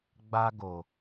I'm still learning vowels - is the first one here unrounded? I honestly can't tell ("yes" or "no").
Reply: yes